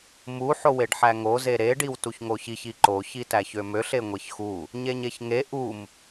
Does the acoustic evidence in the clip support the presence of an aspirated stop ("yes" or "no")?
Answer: no